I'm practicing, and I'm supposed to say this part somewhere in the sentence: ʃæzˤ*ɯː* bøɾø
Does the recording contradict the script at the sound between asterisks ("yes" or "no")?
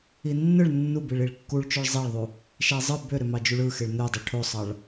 yes